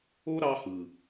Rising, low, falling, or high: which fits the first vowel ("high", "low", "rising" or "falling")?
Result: high